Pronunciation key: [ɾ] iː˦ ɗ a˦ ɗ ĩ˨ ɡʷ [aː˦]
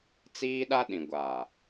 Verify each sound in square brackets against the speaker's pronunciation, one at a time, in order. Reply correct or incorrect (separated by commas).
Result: incorrect, incorrect